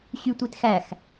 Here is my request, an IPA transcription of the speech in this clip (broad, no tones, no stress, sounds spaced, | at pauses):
ɕ y tʷ i t x æ x